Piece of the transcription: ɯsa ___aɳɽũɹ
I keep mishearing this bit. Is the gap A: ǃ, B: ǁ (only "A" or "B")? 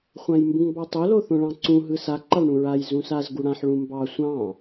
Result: A